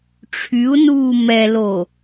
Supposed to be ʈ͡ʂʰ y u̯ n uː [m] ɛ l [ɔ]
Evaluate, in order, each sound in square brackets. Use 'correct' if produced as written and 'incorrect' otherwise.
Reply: correct, incorrect

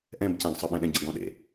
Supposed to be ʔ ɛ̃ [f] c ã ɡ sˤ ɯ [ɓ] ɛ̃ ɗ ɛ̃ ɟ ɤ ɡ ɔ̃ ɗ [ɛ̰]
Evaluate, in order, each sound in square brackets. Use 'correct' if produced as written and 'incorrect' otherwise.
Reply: incorrect, correct, incorrect

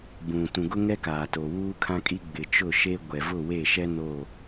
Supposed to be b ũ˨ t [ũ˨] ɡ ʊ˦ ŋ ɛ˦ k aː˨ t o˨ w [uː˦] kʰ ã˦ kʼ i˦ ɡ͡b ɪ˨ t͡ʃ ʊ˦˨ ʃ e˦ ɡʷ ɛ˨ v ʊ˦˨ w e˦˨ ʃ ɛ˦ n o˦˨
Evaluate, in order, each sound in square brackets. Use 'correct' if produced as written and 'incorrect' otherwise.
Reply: correct, correct

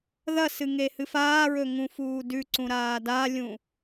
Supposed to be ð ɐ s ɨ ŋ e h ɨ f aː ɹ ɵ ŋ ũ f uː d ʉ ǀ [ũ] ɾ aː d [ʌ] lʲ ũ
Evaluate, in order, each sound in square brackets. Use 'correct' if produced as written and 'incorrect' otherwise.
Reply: correct, incorrect

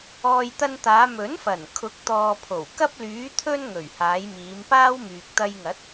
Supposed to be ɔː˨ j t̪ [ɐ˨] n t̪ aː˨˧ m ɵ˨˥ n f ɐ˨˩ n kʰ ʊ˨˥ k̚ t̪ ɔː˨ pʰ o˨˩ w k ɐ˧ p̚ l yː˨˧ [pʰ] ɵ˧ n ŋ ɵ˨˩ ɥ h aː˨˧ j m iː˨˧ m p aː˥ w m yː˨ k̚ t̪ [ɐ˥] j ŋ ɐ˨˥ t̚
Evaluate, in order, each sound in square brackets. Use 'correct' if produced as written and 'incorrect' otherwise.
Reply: incorrect, incorrect, incorrect

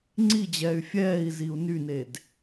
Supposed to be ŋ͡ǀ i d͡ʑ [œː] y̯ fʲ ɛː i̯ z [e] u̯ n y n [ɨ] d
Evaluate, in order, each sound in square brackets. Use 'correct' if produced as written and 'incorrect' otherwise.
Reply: incorrect, incorrect, incorrect

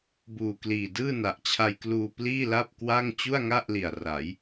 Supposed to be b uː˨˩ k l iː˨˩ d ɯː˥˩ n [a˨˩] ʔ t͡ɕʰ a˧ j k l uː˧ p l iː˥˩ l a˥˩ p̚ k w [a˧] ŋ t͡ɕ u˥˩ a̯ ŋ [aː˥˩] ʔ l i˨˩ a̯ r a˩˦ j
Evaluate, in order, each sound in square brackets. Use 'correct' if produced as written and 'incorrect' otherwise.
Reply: correct, incorrect, incorrect

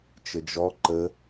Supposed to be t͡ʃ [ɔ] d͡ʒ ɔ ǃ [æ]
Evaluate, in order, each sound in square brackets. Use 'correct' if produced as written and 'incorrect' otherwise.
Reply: incorrect, incorrect

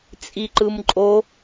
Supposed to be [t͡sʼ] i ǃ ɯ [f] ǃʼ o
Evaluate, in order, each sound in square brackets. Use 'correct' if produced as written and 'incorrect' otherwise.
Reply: correct, incorrect

